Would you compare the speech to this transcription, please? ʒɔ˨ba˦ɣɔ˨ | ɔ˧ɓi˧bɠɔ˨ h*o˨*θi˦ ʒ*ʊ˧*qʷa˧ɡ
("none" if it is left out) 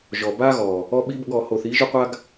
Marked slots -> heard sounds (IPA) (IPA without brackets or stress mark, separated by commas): o˨, ʊ˧